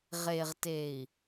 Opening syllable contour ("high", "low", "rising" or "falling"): low